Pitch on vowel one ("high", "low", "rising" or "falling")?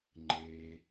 low